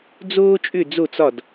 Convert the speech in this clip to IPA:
d͡zoː˥t͡ʃʼʏ˥˧ d͡zo˥˧t͡sɒ˥˧d

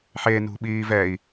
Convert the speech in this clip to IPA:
ħenṳɓiːv ɛi̯

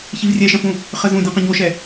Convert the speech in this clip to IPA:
çivrʲɛʃɐ̃fũ | χəzũdʲə̃ qɐ̃ɲoʃɛ

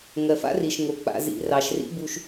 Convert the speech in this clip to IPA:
ŋɜ˨fa̰˦ri˨ʃŋo˨ k͡pa̰˨zḭ˨ rɑ˨ʃrḭ˦bu˧ʃ

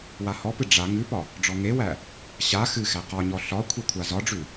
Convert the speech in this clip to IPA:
wahɔpɨ ɖ͡ʐa ŋʉpɒ | ɖ͡ʐɔŋewæ | ɕa xɨxæ qɒɲɔ ɬɒ kʷʰekʷʰazɒɖ͡ʐʉ

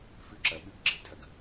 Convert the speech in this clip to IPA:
fʉ˧ǁɐ˨ɓʉ˨˦ɡɡ͡ǁe˧ tʰɐ˨ɡ

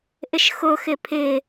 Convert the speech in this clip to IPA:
ʔɪʃxʊ xɪpʰɪ

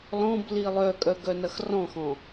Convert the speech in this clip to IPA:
lɔ̃bli lˠœkʼœɡœnɐx rɔ̃xɔ̃

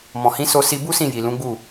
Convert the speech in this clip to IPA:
mɔ̃˨hĩ˨˦ so˧ si˧bu˦ sĩ˦˨ ji˨lũ˨˦ɡ͡bu˦˨

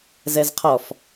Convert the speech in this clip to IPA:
zɛzqʰɔf

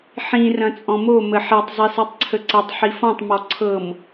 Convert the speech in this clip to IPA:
ħĩ rɐ̃t͡sʼɔ̃mo məħɛtˤ zˤɛsɛtˤǀʰəǀɐtˤ ħifɔ̃tˤ mɔǀʰɤm

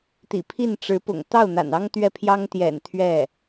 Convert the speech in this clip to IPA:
t̪ḭ˨˩pʰi˥˩nʈ͡ʂɻ̩˧˥pʊ̰˨˩ŋ t̪ɑ˥˩ʊ̯n̪a̰˨˩n ɑ˥ŋt̪ɥɛ˥˩pʰjɑ˥ŋ t̪jɛ̰˨˩n t̪ʰɥɛ˥˩

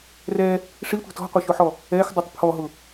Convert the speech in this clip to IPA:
rɛ | ʂitʷi̤ tɔ̤qʷʌʃʊħɔ | ɛxdˤutˤ pʰɔɦʊ

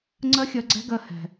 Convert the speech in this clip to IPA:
ŋ͡ǀɜ˦xʲɜ˧ɡ͡ǀɛ̤˦ɡɜ˧ hɛ̤˨

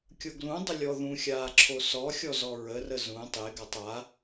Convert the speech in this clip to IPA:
kʲoɡlũdˤɪ lʲɔðũxʲaː ǁʰosɔxʲɔ zɔɹərə zũ tˤeɡatˤ a

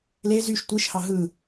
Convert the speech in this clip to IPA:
le zyʃ tʷiʃhɑ ɦɯ

